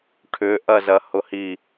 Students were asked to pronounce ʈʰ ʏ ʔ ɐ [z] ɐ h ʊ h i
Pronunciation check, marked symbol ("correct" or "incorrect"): correct